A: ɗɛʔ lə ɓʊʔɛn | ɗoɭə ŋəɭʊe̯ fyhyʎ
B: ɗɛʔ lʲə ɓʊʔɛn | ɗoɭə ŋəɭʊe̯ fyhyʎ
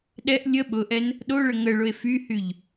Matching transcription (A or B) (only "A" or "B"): B